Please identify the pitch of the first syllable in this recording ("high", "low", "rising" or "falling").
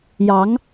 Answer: rising